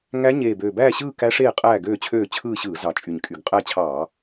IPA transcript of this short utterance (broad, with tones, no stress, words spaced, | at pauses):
ŋæ˦˥ ɲeː˨˩bøː˨˩bæː˦˨ɕɯː˦˨ kæ˦˥ ʂeː˦˨qʼæː˦˨ɡøː˦˨t͡ɕʰøː˦˨ t͡ɕʰɯː˦˨ɕɯː˧˩˧ zɑ˨˩t͡ʃʼy˨˩ɲ kʼy˨˩ɡqʼæ˦˨t͡ɕʰɑː˧˩˧